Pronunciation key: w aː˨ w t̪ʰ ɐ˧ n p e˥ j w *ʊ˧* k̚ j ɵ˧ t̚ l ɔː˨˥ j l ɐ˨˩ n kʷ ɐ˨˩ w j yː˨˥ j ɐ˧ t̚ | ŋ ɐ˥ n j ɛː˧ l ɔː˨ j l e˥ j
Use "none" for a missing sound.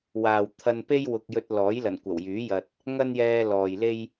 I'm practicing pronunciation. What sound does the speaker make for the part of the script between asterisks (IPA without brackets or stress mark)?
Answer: ʊ˨